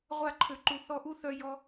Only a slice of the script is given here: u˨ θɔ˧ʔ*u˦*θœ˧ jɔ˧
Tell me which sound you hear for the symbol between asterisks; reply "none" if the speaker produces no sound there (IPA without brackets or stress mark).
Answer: u˦